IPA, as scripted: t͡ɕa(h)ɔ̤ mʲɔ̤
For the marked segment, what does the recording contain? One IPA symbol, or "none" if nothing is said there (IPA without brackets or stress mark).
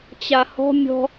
h